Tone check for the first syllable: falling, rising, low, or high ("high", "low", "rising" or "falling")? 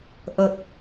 low